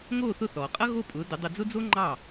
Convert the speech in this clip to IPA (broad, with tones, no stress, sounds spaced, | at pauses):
ŋ oː˥˩ θ ʊ˥˩ θ ɔː˩ qʼ ʌ˥ ɣ o˥˩ pʼ ʊː˩˥ d ʊ˩˥ dˤ ʊ˧ d͡z ʊ˥ d͡z o˥ ŋ͡ǃ ɑ˥˩